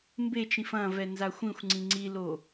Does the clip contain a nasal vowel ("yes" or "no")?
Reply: yes